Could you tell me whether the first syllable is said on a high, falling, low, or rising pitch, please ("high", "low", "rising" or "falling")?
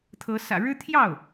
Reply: rising